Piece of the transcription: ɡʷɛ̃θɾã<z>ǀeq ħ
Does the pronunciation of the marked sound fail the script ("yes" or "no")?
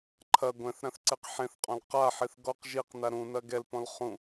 yes